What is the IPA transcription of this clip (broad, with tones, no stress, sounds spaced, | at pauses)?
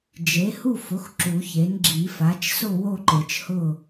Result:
d͡ʒ e˩˥ h u˥˨ f ʊ˩˥ x ǁ u˨˩˦ ç e˩˥ n ɡ͡ǁ i˨˩˦ f a˩˥ t͡ʃ s ʊ˥˨ w o˥˨ ǃ e˨˩˦ t͡ʃ h ʊ˥˨